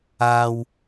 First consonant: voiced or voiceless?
voiced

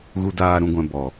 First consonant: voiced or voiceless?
voiced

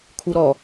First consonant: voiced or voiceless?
voiceless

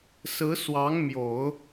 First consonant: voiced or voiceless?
voiceless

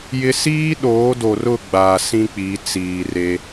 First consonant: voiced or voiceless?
voiced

